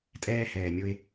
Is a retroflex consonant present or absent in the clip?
absent